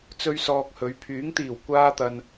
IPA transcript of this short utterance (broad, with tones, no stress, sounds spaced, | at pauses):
t͡s ɵ˥ ɥ s ɔː˧ k̚ h ɵ˨˥ ɥ pʰ yː˨˥ ŋ t̪ iː˨˩ w kʷ aː˥ t̪ ɐ˧ n